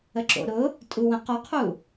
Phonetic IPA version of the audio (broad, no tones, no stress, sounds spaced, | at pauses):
ə ǁ o̰ ɾ ʊ | tʼ u w ə̃ q ɔ qʰ u